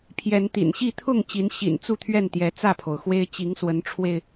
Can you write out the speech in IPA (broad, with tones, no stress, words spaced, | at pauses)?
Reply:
pʰjɛ˨˦nt̪ḭ˨˩nɕi˥˨ t̪ʰʊ˥˨ŋ t͡ɕi˨˦n ɕḭ˨˩nt͡su˥˨t̪ʰɥɛ˥˨nt̪jɛ˨˦ t͡sä˥˨pʰo˩ʊ̯xwe˦ɪ̯ t͡ɕi˨˦ŋswə˨˦nʈ͡ʂʰwe˧ɪ̯